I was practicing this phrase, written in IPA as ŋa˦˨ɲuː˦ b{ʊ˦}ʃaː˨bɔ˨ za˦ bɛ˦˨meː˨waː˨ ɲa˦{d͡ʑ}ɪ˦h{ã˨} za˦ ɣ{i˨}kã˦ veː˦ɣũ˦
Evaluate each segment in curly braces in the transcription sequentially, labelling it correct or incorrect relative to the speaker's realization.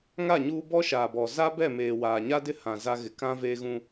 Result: incorrect: ɔ˦, incorrect: d, correct, incorrect: ɪ˨

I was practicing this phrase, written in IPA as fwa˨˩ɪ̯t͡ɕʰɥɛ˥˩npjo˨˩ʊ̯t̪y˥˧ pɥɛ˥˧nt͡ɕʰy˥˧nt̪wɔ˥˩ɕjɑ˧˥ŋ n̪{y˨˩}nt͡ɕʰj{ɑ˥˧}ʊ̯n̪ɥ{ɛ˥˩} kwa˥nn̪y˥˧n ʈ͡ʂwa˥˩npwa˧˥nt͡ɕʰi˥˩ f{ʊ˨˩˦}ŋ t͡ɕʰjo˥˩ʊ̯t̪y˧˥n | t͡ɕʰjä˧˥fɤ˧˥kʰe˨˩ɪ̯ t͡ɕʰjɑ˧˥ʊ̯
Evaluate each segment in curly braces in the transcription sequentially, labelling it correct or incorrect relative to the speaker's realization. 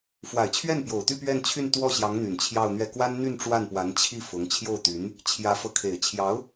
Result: correct, correct, correct, incorrect: ʊ˧˥

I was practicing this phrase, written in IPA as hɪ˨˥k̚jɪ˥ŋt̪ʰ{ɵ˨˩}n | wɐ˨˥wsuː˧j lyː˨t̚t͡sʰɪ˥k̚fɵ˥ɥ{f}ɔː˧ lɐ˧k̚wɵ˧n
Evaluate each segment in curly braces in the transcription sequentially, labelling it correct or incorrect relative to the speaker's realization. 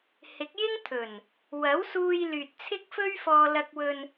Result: correct, correct

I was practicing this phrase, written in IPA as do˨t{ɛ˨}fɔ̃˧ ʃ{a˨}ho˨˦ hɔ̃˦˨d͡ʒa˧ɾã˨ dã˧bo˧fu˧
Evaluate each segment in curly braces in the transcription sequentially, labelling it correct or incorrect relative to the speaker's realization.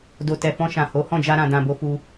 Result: correct, incorrect: ã˨

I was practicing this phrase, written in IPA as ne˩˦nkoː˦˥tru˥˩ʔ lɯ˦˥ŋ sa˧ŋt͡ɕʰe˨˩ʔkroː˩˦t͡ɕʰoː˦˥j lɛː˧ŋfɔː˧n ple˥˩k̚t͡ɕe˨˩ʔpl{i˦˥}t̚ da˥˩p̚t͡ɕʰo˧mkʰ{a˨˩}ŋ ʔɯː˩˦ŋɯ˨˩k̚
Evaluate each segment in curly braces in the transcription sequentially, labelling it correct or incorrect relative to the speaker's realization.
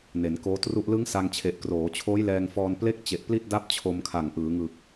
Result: incorrect: i˥˩, correct

